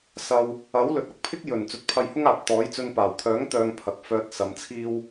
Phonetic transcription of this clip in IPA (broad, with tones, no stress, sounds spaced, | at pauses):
s ɐ˧ w | ɐ˨˥ w l ɵ˨˥ t̚ ɐ˨ k̚ pʰ ɪ˥ k̚ j ɵ˨˩ n t͡s ɵ˨˥ t̚ pʰ ɐ˧ j h ʊ˥ ŋ aː˨ p̚ t̪ ɔː˨˥ j t͡s ɵ˧ n p aː˨˩ w kʰ œː˨˥ ŋ t̪ œː˧ ŋ pʰ ɐ˨ k̚ f œː˧ t̚ s ɐ˨˧ m t͡sʰ iː˥ w